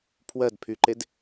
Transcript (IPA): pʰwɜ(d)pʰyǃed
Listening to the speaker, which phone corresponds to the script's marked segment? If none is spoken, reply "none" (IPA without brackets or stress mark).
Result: d